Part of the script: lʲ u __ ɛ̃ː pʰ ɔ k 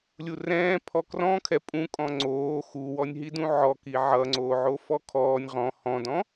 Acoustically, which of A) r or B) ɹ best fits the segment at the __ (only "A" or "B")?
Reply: A